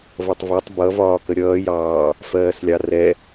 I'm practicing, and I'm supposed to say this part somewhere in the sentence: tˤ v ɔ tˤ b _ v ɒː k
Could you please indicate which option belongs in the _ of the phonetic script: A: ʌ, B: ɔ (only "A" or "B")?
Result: A